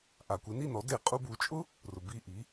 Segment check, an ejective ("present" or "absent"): present